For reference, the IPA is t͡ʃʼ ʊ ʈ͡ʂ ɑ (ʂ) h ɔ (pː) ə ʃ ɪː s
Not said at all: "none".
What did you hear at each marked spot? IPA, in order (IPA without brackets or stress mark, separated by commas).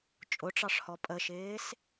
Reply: ʂ, pʼ